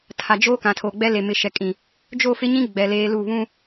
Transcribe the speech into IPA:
tʰ a˨ d͡ʒ o˦ k ã˨ tʰ o˨ ɡ͡b ɛ˦ l e˨ m ɪ˨ ʃ ɛ˨ kʼ ĩ˨ | d͡ʒ o˦˨ f ɪ˦ ɲ ĩ˦ ɡ͡b ɛ˨ l eː˦ l u˦˨ β ũ˦

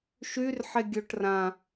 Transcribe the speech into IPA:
ʃ y r ħ e ɡʲ o ʈ r ã

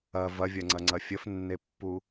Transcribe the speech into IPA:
ɐ v ɐ vʲ ɐ ŋ͡ǀ ɐ ŋ͡ǀ ɐ fʲ ə f nː e pː u

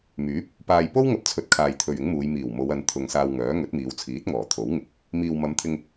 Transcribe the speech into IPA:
m yː˨˥ p̚ | p aː˨ j p o˥ w ŋ ɐ˧ p̚ t͡sʰ ɵ˨˥ t̚ kʰ aː˨ j t̪ʰ ɵ˨ ɥ ɪ˨˥ ŋ m uː˨˧ j m iː˨˩ w m o˨˧ w ɐ˨˧ n t̪ʰ ʊ˨ ŋ s aː˧ w ŋ œː˨˥ ŋ ɵ˨˥ t̚ m iː˨˧ w t͡sʰ iː˨˥ t̚ ŋ ɔː˨˩ t̪ʰ o˨˥ w ŋ ɪ˧ k̚ | m iː˨ w m ɐ˨˧ m t̪ʰ ɪ˧ ŋ

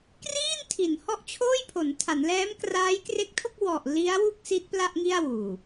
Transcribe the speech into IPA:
k r iː˥˩ n tʰ i˩˦ n h ɔ˦˥ ʔ t͡ɕʰ oː˥˩ j pʰ o˩˦ n tʰ a˩˦ n l ɛː˦˥ m k r aː˦˥ j k r e˦˥ k̚ tʰ o˥˩ k̚ w ɔ˨˩ ʔ l i˦˥ a̯ w u˥˩ k̚ s i˦˥ t̚ p l a˥˩ ʔ ŋ i˥˩ a̯ w uː˨˩

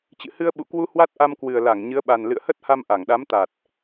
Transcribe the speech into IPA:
t͡ɕ ɨ̰˧˨ h ɨ˧ ə̯ ɓ ṵ˧˨ k w u˧ h w a˦˥ t̚ ʔ a˧ m k w ɨ˨˩ ə̯ l a˧˩ ŋ ɲ ɨ˨˦ ə̯ ɓ a˨˩ n l ɨ̰˧˨ ə̯ h ə˦˥ t̚ h a˧ m ʔ a˧˩ ŋ ɗ a˨˦ m t̪ a˨˩ t̚

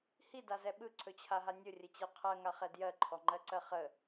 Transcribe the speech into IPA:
h i d a z ɛ ɓ ɯ ǀʰ ɵ t͡ɕʰ a ɦ a nʲ ʊ rʲ ə t͡ɕ ɛ qʰ ɜ ŋ a χ ɛ d j ɜ ǃʰ ɔ ŋ͡ǃ ɜ ǀ ɜ χ ə

